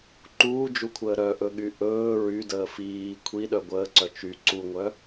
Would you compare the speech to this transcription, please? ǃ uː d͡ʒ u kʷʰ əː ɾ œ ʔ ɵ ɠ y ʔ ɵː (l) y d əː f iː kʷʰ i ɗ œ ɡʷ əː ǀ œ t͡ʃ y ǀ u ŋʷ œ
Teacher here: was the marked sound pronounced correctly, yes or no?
no